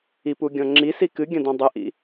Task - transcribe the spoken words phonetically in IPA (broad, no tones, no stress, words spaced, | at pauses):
ipuɡʲɔ̃ ŋ͡ǁisi kɨɡʲɐ̃dɔ̃ dˤɘʔḭ